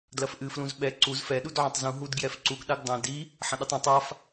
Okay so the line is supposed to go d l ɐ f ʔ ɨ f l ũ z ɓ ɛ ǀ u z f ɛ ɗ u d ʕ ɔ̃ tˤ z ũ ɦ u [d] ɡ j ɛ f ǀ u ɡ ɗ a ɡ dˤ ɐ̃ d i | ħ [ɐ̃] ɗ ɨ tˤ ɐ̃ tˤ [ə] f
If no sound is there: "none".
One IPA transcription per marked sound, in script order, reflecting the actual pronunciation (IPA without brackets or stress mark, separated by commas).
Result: d, ɐ̃, a